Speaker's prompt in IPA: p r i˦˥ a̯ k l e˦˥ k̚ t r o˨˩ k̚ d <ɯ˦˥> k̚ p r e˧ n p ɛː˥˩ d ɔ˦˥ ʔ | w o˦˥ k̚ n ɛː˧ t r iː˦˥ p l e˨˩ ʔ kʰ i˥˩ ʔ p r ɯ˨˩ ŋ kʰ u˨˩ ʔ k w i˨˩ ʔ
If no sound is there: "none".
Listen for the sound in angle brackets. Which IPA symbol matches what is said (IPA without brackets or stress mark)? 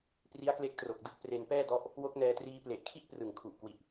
ɯ˦˥